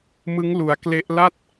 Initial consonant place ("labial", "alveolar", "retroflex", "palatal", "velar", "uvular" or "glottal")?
labial